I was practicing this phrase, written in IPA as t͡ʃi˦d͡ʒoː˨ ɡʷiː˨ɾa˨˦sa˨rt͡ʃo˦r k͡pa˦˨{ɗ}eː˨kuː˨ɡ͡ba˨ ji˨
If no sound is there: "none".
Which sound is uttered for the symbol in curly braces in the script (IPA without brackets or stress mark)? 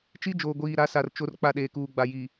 ɗ